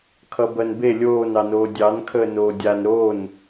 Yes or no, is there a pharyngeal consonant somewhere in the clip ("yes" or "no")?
no